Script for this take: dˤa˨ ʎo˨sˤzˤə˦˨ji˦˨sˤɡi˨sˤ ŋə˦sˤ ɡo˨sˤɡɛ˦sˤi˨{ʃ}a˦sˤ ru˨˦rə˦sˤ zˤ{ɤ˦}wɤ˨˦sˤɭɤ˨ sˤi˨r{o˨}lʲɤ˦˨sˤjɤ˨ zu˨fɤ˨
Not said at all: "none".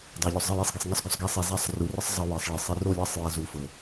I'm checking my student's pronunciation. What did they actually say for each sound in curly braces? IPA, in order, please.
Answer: z, ɤ˦, o˦˨

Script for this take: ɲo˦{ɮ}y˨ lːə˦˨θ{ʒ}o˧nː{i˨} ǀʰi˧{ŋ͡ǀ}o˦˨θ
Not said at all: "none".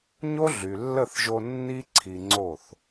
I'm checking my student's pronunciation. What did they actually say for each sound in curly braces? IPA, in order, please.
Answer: ɮ, ʒ, i˦, ŋ͡ǀ

